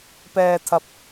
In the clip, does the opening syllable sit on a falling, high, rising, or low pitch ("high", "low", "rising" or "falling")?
low